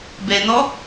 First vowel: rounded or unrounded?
unrounded